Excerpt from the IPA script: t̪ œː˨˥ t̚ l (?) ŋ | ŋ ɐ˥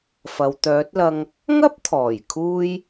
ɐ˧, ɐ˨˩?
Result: ɐ˧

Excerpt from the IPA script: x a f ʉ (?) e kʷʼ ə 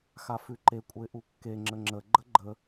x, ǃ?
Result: ǃ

